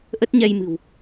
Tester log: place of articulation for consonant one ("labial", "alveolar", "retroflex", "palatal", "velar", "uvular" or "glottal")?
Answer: glottal